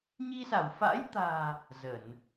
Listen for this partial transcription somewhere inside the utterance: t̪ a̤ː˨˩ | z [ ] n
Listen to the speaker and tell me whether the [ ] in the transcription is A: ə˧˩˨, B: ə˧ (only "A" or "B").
A